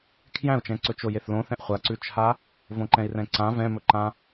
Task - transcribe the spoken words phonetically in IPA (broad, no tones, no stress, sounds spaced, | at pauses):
kʰ j æ̃ u̯ t͡ʃ ɛ̃ ǀ ɵ t͡ʃ o j e θ l õ θ ɛ̃ ʔ χʷ a ǀ ʉ t͡ʃʰ a | v õ ǃ ɛ̃ i̯ r ɛ̃ ǀ ã v ɛ̃ m ɵ ǃ ã